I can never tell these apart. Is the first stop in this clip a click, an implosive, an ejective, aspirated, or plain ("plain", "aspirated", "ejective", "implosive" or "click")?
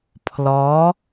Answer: aspirated